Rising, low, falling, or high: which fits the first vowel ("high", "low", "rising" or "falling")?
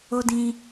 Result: high